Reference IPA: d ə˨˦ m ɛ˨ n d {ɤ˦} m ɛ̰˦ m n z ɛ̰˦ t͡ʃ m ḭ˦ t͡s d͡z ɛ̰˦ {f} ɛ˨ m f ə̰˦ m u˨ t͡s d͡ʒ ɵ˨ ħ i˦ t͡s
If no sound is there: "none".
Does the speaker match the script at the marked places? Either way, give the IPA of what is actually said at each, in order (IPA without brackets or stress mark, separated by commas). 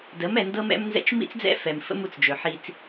ɤ˦, f